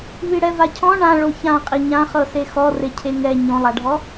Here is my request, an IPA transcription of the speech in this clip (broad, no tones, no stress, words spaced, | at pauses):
βiɽɛvacʰɔ̃ ɳã ɭoçã qʼiɲãχɤse xɔrecʰe ŋɛ ɲõlˠaɖʱɔ